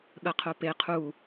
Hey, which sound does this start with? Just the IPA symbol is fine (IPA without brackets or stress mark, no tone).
ɠ